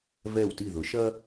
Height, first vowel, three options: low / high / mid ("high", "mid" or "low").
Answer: mid